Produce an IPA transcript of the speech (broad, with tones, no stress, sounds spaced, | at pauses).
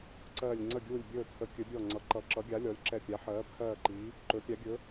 ǀ ɜː˦˨ lʲ ŋ͡ǀ ə˦˨ ɡʲ uː˦˨ lʲ bʲ ɵː˦˨ tʰ ə˨˥ kʲ ɵ˨˥ bʲ ɔ˦˨ ŋ͡ǀ ʌ˨˥ ǃ ʌ˨˥ ǁ ʌ˨˥ ɡʲ a˨˥ lʲ ɔ˨˥ lʲ ǁ ɛ˦˨ pʲ a˨˥ ħ ɜː˨˥ pʰ ɜː˦˨ ǃ i˨˥ | ǃ ɵ˨˥ pʲ a˨˥ ɡʲ ɵ˨˥